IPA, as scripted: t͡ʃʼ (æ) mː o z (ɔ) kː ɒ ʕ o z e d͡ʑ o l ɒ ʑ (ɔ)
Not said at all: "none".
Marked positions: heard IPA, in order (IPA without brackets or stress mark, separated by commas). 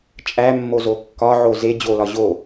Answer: æ, o, o